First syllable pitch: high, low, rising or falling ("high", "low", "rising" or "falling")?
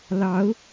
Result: rising